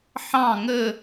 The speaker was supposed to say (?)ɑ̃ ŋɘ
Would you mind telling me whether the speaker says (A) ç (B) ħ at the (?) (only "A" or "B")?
B